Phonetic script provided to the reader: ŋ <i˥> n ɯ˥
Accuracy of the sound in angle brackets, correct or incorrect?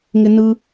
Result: incorrect